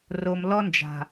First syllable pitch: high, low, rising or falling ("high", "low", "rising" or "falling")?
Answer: low